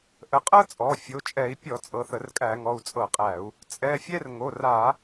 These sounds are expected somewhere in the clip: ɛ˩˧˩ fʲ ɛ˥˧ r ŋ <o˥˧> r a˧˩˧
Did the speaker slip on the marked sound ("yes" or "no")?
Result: yes